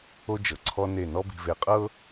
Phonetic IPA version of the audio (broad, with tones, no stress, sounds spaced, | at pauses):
o˦ d͡ʒ ɤ˨ ǀʰ ɔ˦ n e˦˨ n ɔ˦ b i̤˨ v e˨ qʼ ɤ˦